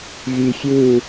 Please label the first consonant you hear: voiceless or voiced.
voiced